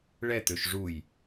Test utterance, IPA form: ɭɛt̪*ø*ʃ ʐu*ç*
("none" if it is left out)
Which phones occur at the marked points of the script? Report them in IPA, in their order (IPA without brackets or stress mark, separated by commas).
ø, j